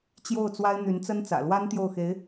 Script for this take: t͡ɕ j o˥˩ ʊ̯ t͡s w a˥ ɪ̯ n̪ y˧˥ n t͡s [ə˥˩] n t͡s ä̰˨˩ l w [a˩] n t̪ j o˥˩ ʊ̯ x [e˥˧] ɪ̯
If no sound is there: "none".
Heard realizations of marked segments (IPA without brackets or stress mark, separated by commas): ə˥, a˥, e˧˥